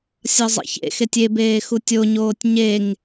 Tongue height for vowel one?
low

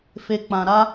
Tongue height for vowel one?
mid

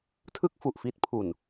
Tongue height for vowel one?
high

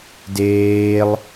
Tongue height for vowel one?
mid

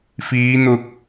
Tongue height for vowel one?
high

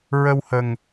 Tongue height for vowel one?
mid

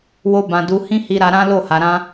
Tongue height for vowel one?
mid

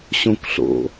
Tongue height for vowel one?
mid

